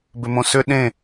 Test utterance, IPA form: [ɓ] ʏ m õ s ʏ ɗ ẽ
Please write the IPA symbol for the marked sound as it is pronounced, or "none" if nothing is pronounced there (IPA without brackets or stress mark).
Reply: b